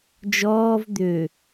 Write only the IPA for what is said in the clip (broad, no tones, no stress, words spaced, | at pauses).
d͡ʒɔːv d̪ø